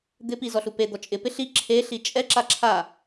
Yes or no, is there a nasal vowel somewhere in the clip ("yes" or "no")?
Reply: no